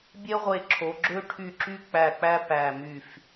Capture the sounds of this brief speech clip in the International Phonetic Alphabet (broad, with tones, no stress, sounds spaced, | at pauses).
bʲ e˥ ʁʷ e˦˨ ǁʰ o˨˦ ɡ͡ǁ ø˥ ʈʰ y˦˨ ǁ y˥ k͡p æ˦˨ k͡p æ˥ p æ˦˨ m y˦˨ f